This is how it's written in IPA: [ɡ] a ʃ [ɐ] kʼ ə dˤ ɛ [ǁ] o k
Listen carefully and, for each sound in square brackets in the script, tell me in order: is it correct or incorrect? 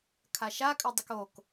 incorrect, incorrect, incorrect

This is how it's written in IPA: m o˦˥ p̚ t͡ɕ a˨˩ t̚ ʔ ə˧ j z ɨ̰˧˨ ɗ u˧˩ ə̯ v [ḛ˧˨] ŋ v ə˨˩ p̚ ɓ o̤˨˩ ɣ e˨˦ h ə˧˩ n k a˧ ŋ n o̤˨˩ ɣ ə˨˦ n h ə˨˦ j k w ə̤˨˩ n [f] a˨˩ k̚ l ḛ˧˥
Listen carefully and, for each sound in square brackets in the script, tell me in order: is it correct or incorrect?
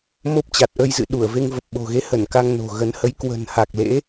incorrect, incorrect

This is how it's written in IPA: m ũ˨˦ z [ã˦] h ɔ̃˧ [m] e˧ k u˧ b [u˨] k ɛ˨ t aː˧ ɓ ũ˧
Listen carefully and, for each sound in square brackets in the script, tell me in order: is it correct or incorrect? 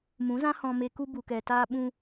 correct, correct, correct

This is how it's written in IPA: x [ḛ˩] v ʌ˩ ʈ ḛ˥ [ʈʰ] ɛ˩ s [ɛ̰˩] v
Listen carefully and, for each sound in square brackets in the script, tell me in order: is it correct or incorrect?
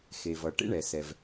incorrect, incorrect, incorrect

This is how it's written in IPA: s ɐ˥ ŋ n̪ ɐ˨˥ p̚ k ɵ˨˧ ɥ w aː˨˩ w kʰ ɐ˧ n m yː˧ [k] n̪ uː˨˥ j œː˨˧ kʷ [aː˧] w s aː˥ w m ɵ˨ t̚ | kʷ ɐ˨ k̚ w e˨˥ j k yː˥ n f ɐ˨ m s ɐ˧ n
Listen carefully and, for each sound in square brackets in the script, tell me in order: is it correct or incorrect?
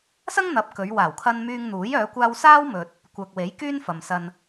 incorrect, correct

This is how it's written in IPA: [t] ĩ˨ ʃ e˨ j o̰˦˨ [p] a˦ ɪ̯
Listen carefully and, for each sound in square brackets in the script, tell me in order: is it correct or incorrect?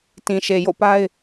correct, correct

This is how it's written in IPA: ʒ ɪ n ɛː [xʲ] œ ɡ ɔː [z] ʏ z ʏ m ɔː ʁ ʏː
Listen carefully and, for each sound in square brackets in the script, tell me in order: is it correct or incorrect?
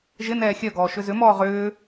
correct, incorrect

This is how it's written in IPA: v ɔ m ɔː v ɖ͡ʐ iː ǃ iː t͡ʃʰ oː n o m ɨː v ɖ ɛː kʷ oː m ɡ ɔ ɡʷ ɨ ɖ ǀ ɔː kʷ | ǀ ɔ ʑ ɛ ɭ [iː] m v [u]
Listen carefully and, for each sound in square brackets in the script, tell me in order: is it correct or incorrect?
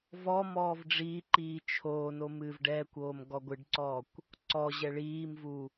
correct, correct

